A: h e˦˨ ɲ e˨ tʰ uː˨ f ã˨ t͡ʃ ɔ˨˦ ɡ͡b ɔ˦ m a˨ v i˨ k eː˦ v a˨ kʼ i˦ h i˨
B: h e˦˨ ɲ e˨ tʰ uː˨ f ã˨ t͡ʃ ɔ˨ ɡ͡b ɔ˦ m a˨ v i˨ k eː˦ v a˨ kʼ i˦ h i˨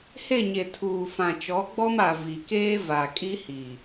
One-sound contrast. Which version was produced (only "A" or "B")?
A